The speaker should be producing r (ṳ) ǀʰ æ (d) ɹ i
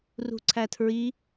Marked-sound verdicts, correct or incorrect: correct, incorrect: tʰ

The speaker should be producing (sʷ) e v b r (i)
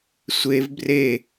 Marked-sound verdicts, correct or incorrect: correct, incorrect: e

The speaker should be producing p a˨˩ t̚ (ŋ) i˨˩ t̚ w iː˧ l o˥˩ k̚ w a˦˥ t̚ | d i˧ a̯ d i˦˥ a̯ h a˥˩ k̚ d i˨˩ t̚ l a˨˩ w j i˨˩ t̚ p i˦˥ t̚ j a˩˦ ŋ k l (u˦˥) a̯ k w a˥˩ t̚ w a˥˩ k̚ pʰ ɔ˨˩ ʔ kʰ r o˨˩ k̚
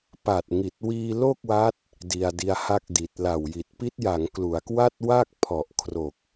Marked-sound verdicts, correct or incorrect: correct, incorrect: u˩˦

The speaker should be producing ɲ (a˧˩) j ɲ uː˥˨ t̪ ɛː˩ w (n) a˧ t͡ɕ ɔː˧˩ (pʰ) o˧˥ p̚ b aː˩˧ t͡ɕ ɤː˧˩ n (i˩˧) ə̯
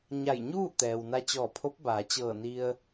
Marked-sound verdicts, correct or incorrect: correct, correct, correct, incorrect: i˧

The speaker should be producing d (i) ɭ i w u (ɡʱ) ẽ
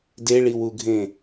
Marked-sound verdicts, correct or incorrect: incorrect: e, correct

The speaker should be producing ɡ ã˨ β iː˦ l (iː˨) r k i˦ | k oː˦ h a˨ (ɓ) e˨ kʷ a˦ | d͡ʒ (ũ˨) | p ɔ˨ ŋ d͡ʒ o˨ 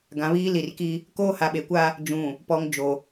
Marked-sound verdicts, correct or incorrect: incorrect: i˨, correct, correct

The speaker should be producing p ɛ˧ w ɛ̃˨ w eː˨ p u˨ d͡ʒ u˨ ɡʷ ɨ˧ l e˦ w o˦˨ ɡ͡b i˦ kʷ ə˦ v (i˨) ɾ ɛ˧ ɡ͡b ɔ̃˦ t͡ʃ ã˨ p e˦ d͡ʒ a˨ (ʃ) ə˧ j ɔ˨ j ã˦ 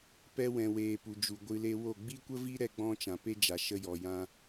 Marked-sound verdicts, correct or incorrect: incorrect: i˦, correct

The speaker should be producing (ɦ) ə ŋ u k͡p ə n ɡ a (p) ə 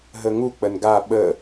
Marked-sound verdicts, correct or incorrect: correct, incorrect: ɓ

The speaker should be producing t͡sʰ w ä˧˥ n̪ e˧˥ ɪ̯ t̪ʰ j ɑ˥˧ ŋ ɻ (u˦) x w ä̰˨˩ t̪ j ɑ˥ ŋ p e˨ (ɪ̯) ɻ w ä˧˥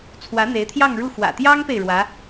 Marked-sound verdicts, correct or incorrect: incorrect: u˥˩, correct

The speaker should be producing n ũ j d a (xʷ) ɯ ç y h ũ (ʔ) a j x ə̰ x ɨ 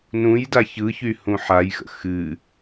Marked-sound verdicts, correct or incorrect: incorrect: ç, incorrect: ħ

